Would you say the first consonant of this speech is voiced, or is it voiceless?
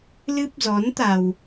voiced